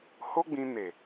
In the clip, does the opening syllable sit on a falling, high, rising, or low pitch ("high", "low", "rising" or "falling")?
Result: high